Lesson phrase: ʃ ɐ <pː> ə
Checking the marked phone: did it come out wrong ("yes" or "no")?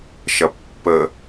no